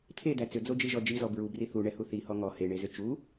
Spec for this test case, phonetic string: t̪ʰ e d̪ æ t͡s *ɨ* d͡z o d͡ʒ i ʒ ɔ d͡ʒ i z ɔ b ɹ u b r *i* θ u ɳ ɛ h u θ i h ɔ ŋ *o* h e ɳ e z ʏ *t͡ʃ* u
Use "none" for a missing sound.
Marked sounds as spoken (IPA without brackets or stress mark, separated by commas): ʏ, i, ɔ, t͡ʃ